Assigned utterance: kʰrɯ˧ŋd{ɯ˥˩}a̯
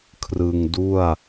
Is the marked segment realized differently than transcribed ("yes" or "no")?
yes